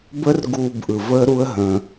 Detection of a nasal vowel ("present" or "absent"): present